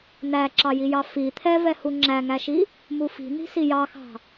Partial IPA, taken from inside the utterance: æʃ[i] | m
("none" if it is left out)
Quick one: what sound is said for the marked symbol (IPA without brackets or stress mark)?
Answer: i